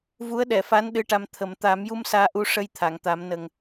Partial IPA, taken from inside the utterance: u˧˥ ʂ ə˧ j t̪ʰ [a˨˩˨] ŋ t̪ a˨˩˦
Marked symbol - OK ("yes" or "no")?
yes